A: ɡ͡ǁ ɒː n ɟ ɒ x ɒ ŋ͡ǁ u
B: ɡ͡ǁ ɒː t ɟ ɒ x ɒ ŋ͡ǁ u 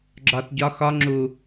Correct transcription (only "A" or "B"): B